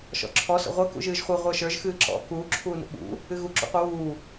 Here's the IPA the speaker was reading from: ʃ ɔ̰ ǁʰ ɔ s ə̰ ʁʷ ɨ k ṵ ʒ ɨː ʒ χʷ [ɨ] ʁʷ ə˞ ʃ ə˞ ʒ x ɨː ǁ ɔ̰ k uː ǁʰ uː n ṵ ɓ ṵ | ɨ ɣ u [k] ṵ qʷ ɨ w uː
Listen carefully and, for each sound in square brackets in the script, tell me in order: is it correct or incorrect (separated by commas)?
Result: correct, incorrect